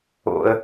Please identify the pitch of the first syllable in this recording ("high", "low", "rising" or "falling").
high